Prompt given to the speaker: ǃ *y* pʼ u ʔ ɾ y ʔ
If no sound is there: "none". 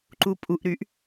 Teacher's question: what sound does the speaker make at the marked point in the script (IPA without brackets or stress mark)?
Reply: u